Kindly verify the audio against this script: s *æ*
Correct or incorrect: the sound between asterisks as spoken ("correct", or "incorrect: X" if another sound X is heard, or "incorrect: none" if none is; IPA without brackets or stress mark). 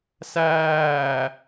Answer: incorrect: æː